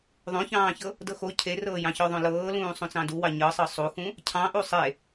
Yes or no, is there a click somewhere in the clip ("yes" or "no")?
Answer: no